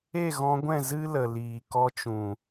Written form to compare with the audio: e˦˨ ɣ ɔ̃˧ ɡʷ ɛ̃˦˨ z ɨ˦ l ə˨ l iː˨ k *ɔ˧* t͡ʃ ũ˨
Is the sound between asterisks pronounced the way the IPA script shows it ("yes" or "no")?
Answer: yes